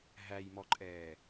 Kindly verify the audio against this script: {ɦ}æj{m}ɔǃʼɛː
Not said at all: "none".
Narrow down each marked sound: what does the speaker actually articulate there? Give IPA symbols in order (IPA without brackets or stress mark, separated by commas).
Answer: ɦ, m